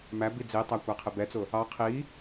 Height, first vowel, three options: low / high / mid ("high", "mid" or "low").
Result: low